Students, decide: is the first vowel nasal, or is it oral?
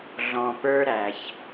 nasal